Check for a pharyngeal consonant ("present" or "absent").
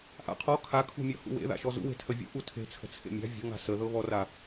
absent